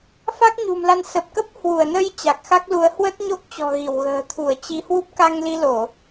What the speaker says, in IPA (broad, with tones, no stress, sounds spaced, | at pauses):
f a˦˥ k̚ ɲ ṳ˨˩ m l a˧ n s ə˨˩ p̚ k ə˦˥ p̚ h w u˧˩ ə̯ n ə˧ j t͡ɕ a˨˩ k̚ x a˦˥ k̚ l u˨˦ ə̯ h w ə˦˥ t̚ ɲ o˦˥ k̚ t͡ɕ ɔ̤˨˩ ɣ i˧˩ w ɣ ə̤ː˨˩ t̪ʰ u˧˩ ə̯ t͡ɕ i˨˦ h w u˦˥ p̚ k a˧ ŋ l i˧ l o˧˩˨